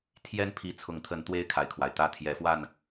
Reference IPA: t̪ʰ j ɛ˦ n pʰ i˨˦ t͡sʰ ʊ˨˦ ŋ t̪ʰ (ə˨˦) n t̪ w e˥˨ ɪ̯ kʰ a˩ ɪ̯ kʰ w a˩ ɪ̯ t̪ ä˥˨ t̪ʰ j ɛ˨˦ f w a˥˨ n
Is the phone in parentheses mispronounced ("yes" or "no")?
no